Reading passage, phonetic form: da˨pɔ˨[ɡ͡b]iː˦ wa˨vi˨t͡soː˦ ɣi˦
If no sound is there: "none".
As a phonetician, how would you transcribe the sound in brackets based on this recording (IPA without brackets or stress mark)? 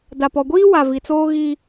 ɡʷ